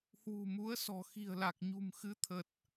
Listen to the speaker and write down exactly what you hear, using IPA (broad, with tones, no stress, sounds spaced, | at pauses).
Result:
h w ṳ˨˩ m u˨˦ ə̯ s ɔ̤˨˩ x i̤˨˩ ə̯ l a˨˩ k̚ ɲ ṳ˨˩ m x ɨ˨˦ t̪ʰ ə˨˩ t̚